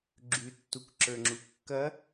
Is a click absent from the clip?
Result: no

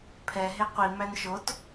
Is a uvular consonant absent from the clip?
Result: no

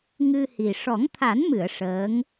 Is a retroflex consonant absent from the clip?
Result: no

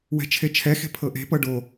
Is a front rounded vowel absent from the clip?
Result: yes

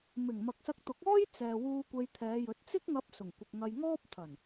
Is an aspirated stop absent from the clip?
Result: no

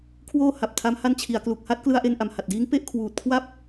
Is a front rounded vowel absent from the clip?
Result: yes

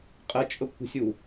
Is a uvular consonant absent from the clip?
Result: no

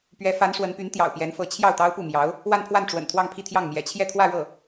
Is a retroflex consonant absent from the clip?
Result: no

